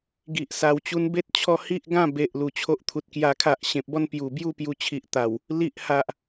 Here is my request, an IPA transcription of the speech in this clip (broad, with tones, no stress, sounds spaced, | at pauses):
ɡ i˨ ʔ s a˨˩ w t͡ɕ u˧ n b e˦ t̚ t͡ɕʰ ɔ˧ h i˦ ʔ ɡ ã˥˧ b e˨ ʔ l u˨˩ t͡ɕʰ o˦ ʔ t̪ʰ u˨ t̚ k j a˦ kʰ a˦ ʔ ɕ ẽ˨ p̚ b ɔ˦ n p j u˨˩ b j u˦ p j u˧ t͡ɕʰ i˨ ʔ t̪ a˨˩ w | l i˦ ʔ h a˨ ʔ